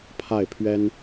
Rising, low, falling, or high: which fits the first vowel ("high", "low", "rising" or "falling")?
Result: falling